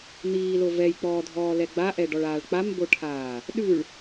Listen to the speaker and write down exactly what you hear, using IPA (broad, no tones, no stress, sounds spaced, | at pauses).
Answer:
n̪ iː l o v ɛ j k͡p ɔː dʱ ɔː l ɛ ɡ͡b a ʔ ɛ ɖ ɔ ɭ aː ɭ k͡p a m b o ʈʰ aː | ɗ ʉ ɭ